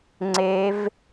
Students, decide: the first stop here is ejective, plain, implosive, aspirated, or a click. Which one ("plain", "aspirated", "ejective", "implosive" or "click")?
click